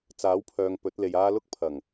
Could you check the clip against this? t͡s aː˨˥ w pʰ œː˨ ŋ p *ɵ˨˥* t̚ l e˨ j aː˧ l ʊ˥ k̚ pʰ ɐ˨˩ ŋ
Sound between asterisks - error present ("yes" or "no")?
no